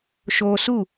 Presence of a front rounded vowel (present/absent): absent